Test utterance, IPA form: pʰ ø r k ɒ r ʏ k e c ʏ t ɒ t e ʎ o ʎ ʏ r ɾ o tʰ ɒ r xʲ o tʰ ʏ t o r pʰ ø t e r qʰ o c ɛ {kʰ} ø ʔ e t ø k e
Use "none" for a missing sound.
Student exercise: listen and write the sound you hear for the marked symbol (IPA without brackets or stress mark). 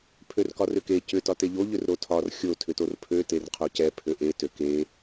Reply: pʰ